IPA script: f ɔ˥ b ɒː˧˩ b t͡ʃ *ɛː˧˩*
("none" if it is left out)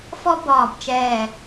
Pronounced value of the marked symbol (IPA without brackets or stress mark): ɛː˧˩